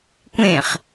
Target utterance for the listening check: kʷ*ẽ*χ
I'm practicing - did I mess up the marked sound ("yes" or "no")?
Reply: no